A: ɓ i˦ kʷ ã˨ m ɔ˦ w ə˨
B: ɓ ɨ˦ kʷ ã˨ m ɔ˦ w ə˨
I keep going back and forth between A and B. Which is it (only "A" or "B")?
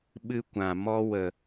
B